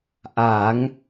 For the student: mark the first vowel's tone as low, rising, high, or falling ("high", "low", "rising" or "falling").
rising